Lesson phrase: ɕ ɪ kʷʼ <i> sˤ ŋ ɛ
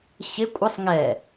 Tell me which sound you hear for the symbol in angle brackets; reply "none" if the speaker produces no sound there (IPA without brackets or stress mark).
ɪ